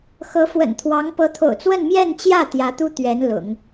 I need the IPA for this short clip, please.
x ɤ˧˥ f w ə̰˨˩ n t̪ʰ w ɑ˧˥ ŋ p ɤ˧˥ t̪ʰ o̰˨˩ ʊ̯ t͡s w ə˥˧ n m j ɛ˥˧ n t͡ɕ j ä˥˩ t̪ j ä˧˥ t̪ u˥ t̪ ɥ ɛ˧˥ n l ʊ̰˨˩˦ ŋ

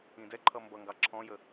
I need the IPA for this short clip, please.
ĩ d ɛ ǃʰ ʌ m b ʌ ŋ ɡ ɑ ǁʰ ɔ̃ j ə

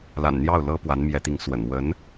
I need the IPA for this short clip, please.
l a̰˨˩ n n̪ j ɑ˥˩ ʊ̯ l ɤ˥ p w a˧˥ n m j ɛ˧˥ t̪ i˧˥ ŋ s w ə̰˨˩ n w ə˧˥ n

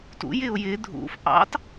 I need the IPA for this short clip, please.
t ṵ j ɪ ʊ̯ j ɪ dʱ ṵ f ʔ ɑ̰ t

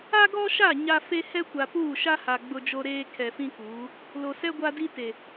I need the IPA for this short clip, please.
a˦ ɡ ɔ˦ ʃ a˦˨ ɲ a˦ f e˦ h ɛ˦ kʷ a˨ p uː˦˨ ʃ a˦ h a˨ ɡ͡b ʊ˦ d͡ʒ o˦ ɾ eː˦ kʰ ɛ˨ f ĩ˦ k uː˨˦ | l o˨ s ɛ˦ ɡʷ a˦ d i˦ t e˨

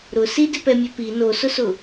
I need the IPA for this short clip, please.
ɾ ʊ s i d ɪ p ɛ mʲ ɛ p i n o s ʊ s ʊ

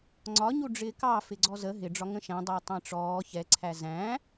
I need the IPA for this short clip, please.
ŋ͡ǀ ɒ ɲ u ɖ͡ʐ ɪː k ɑ f ɪ ɡ͡ǀ ɔ z ə ɦ ɪ ɖ͡ʐ ɒ ŋ ə̃ ʃ æ̃ dˤ æ tˤ æ̃ ʈ͡ʂ ɔː ç ɛ ǀʰ æ z æ̃

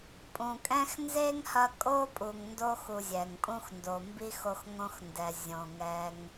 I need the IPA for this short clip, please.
pʼ ũ˨ kʼ ɛ̃˦ x n z e˥ ŋ h ɐ˦ kʼ o˥ pʼ u˨ ŋ n d o˦ x u˨ zʲ ɛ˩ ŋ pʼ ũ˦ x n d o˨ m b i˥ x o˦ x ŋ õ˦ x n d ɛ˨ zʲ õ˨ ŋ ɛ˦ ŋ

